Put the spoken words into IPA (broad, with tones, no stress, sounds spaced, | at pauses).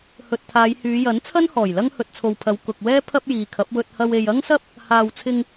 h ɵ˨ t̚ t̪ʰ aː˨˧ j h yː˨˧ j ɐ˨˥ n t͡sʰ ɐ˥ n h ɔː˨˩ j l ɐ˥ ŋ h ɵ˨ t̚ t͡sʰ o˨ w pʰ ɐ˨˧ w k ʊ˨ k̚ w ɛː˥ pʰ ɐ˥ p̚ j iː˨ kʰ ɐ˨˥ p̚ w ɵ˧ t̚ h ɐ˧ w e˨ j ɐ˥ ŋ s ɐ˥ p̚ | h aː˨ w t͡sʰ ɪ˧ ŋ